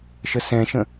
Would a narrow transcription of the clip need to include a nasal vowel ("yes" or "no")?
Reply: yes